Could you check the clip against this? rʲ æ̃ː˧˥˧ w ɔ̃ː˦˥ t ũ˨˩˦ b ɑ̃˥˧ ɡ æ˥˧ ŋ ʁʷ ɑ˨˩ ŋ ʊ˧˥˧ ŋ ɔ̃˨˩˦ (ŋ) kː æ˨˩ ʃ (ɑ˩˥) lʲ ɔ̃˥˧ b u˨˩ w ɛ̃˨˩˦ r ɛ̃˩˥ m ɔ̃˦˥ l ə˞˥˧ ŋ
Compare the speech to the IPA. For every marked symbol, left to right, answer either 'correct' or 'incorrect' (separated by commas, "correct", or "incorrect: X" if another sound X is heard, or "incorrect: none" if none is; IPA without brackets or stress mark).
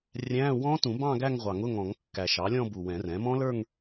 correct, correct